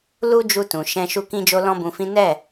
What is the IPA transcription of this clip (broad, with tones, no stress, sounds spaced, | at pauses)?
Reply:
l u˦ d͡ʒ u˧ t ũ˨ ʃ ɛ̃˧ ʃ u˦ k ĩ˦ d͡ʒ o˦ l ɔ̃˦ b ũ˧ f ĩ˦ n ɛ˦˨